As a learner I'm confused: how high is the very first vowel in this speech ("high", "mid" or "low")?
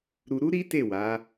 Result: high